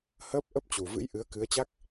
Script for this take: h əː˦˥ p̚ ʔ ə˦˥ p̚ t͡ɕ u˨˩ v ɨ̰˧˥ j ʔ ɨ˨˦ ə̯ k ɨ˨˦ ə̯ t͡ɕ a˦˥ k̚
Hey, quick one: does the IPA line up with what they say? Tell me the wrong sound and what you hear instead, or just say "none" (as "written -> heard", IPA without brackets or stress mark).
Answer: none